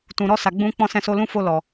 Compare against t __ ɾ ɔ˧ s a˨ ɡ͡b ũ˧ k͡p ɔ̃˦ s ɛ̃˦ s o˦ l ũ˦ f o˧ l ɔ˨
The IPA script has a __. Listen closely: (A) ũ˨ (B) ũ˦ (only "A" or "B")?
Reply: A